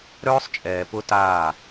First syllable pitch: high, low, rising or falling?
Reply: high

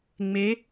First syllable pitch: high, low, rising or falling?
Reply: rising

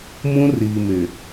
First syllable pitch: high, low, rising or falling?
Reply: high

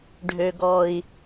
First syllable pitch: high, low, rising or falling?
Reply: low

